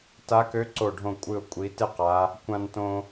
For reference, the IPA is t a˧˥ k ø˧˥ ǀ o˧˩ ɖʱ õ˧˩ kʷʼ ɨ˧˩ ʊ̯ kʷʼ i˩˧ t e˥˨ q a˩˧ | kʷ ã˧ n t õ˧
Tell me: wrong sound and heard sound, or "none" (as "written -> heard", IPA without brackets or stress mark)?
none